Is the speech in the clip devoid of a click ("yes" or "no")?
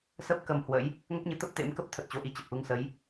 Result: yes